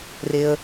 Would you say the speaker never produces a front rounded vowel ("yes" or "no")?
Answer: yes